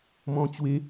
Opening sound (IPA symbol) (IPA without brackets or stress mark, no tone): m